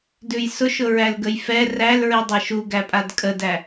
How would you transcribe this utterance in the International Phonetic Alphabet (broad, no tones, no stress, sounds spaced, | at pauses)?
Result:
d ʉ j s ʊ ʃ ʊ ɹ æ l ɡ ə j f ɛ r æ l ɹ i dˤ æ ʃ u ɡ æ pʼ a d kʼ ə d æ